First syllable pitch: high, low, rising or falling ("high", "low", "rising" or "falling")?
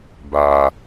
low